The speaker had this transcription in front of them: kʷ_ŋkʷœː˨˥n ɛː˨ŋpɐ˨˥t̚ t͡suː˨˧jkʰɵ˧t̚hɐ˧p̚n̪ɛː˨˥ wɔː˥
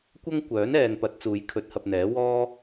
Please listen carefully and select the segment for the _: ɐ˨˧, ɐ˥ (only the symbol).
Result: ɐ˥